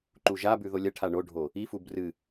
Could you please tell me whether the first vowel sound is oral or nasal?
oral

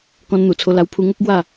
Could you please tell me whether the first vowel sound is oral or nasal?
nasal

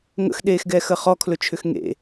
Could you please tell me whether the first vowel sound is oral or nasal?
oral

